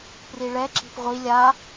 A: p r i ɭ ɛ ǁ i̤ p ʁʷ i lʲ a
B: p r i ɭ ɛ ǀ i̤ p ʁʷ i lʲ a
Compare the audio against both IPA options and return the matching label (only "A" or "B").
A